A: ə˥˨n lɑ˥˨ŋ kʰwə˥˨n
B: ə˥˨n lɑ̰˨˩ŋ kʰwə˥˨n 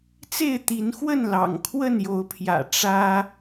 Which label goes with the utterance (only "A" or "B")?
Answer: B